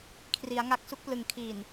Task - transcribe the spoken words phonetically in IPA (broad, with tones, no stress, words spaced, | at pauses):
kʰri˩˦a̯ŋa˦˥k̚ su˦˥k̚plɯ˨˩ŋ kʰiː˨˩n